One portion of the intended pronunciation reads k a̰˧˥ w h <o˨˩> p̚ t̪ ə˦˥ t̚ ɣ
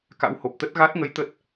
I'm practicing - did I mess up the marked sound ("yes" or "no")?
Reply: no